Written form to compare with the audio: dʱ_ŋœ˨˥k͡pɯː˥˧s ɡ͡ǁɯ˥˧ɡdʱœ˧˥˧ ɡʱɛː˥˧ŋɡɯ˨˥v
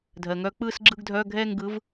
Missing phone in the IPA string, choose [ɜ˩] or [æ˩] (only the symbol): ɜ˩